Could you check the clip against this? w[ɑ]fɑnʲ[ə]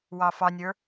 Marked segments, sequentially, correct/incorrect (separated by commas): correct, incorrect